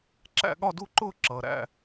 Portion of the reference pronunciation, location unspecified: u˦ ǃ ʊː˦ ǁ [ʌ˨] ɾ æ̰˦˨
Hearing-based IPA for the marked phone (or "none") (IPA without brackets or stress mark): ʌː˨